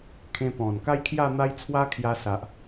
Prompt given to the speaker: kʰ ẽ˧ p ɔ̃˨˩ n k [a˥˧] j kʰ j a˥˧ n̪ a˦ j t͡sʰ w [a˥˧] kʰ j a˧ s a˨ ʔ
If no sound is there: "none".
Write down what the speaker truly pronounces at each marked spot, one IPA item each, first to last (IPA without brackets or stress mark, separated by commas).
a˦, a˦